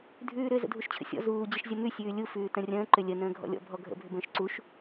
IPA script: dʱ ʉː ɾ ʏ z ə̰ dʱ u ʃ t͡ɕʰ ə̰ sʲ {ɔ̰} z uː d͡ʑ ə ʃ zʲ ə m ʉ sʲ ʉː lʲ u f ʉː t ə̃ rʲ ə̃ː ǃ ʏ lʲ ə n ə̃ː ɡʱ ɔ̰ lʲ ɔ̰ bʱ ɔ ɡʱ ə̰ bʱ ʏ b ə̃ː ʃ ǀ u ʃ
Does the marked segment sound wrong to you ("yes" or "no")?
no